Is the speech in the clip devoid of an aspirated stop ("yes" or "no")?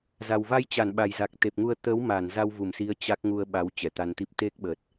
yes